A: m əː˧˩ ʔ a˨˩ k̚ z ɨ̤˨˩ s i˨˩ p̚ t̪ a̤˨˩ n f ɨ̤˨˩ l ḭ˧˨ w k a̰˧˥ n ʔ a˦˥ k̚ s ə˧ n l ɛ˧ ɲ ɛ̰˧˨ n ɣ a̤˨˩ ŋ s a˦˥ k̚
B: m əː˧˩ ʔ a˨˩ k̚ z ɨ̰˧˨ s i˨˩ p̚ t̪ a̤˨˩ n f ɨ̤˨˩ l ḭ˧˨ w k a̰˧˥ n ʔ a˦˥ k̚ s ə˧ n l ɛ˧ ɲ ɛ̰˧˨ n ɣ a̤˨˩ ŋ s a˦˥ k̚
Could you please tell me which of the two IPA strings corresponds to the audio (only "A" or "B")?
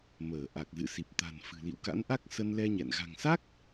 B